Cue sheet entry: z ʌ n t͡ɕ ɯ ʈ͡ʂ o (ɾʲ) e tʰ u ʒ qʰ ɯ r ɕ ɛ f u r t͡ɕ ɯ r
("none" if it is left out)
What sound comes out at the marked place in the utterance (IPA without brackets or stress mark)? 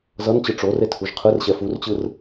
r